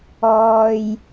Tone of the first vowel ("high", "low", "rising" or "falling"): low